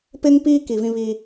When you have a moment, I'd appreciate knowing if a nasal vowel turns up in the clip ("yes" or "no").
yes